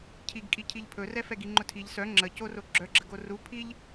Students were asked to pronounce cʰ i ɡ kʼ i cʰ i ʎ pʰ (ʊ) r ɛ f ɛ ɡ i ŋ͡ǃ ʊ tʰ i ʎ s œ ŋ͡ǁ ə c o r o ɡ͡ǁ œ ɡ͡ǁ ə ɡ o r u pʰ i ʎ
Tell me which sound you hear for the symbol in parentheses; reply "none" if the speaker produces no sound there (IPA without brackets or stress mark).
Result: ɵ